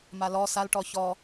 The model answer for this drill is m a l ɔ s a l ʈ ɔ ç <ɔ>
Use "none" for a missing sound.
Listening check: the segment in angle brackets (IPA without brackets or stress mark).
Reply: ɔ